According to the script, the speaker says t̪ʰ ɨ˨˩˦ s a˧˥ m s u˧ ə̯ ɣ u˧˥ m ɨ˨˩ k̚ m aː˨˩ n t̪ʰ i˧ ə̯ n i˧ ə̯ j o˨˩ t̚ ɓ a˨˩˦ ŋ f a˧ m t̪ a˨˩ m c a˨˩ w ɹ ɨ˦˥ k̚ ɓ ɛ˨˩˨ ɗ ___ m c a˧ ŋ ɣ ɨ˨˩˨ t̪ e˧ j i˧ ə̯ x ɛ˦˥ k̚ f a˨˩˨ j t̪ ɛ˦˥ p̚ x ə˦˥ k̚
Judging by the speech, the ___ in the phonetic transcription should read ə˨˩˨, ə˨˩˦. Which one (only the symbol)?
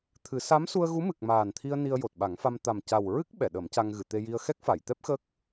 ə˨˩˦